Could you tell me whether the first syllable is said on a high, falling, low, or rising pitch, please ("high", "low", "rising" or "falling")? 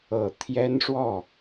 low